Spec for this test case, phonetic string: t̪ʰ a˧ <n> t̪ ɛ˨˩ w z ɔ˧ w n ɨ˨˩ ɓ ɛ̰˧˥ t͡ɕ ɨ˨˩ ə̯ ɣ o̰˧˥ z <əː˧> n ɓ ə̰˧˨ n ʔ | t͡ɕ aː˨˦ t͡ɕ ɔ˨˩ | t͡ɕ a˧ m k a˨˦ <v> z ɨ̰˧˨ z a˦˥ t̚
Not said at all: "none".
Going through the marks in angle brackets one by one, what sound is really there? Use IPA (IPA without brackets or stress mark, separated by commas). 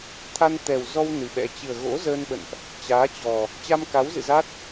n, əː˧, w